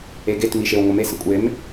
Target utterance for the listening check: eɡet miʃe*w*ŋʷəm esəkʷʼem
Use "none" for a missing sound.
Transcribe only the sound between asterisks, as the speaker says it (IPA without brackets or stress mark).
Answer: w